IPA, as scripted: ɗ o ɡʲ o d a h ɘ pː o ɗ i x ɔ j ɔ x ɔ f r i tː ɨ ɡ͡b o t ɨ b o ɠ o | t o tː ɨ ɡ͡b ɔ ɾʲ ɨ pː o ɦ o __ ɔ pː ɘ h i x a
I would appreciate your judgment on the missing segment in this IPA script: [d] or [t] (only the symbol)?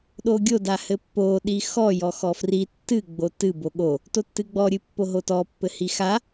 t